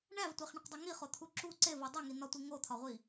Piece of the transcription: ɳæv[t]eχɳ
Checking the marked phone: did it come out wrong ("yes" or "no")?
yes